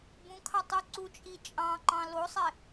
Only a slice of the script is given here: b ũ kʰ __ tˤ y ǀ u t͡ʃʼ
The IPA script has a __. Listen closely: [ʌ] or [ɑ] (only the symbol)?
ɑ